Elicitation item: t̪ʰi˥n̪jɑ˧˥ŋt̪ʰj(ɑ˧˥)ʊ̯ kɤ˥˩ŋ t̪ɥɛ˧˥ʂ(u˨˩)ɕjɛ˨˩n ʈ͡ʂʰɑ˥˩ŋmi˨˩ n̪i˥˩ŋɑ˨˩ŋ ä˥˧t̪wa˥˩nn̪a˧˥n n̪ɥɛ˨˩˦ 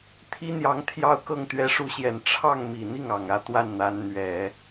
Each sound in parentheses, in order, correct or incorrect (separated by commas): incorrect, incorrect